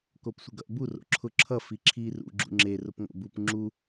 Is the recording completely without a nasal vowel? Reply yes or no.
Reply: yes